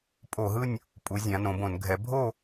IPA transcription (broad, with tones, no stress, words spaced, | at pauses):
pʼo˧˩˧ɦɯ˦˨nʲ | pʼu˩˧ zʲã˩˧nõ˩˧bõ˧˩˧n ɡʱɛ˩˧bʱo˦˨